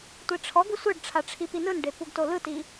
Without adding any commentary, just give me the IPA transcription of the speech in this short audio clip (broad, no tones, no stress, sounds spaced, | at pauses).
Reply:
tʷ i ʈ͡ʂʰ ɔ ɡ u sʷ ɯ ɖ ʈ͡ʂʰ a ʈ͡ʂʰ i p i n ɯ n ɖ e p u ɡ t o l ɯ t i